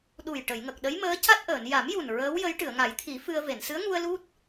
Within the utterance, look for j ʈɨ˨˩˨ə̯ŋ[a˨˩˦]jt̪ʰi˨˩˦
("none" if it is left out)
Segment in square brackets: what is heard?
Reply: a˨˩˦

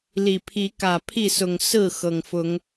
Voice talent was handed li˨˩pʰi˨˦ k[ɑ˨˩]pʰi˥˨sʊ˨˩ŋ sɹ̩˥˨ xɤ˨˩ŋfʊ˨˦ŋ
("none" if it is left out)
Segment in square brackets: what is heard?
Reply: ä˨˩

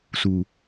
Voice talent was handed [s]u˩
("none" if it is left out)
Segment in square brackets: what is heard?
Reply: s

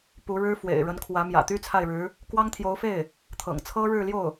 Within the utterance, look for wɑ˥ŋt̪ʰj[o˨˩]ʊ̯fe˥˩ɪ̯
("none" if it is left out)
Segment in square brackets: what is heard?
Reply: o˧˥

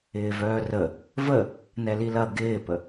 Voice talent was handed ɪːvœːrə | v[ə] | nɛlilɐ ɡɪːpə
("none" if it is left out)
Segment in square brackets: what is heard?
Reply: ə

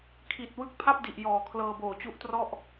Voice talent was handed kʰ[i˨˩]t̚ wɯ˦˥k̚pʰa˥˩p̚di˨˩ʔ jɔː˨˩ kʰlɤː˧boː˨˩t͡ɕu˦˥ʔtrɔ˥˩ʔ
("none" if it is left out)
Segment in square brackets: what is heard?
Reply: i˨˩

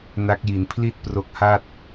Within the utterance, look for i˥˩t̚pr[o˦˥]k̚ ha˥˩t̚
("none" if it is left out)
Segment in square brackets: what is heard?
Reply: o˦˥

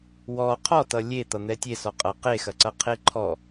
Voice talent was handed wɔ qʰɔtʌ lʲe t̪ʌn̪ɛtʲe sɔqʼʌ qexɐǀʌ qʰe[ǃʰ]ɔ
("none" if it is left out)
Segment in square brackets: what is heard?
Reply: ǃʰ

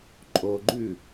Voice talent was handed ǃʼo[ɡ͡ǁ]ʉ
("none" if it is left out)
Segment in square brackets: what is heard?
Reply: ɡ͡ǃ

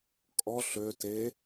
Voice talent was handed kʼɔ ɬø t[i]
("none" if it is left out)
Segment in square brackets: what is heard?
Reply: e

